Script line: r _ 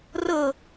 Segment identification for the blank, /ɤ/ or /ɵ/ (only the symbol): ɤ